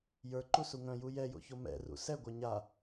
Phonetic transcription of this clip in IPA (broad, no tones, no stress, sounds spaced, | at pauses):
j ə˞ ǃ u s u ŋ œ̃ j u j ɛ j o̰ ç o m ɛ̰ r ṵ s ɛ ɡʷ ɛ ɲ a